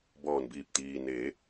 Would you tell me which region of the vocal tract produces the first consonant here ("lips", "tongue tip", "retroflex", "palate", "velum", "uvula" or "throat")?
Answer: lips